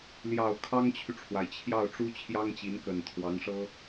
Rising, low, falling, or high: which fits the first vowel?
low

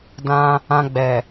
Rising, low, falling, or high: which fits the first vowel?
high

